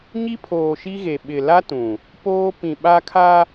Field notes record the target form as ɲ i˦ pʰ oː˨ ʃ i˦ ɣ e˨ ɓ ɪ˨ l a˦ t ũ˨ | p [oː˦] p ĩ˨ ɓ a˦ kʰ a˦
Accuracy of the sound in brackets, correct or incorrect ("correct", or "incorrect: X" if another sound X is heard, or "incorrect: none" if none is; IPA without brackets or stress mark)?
correct